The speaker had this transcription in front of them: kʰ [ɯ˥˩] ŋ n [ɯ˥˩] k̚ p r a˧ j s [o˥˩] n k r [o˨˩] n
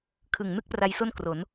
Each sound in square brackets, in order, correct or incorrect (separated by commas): incorrect, correct, correct, incorrect